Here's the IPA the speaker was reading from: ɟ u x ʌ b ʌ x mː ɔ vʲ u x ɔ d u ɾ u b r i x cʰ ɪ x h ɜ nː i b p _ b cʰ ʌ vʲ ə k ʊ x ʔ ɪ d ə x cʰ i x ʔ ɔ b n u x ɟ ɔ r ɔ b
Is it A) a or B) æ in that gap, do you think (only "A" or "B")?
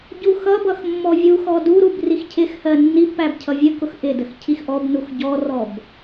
B